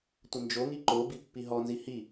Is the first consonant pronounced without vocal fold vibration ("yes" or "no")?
yes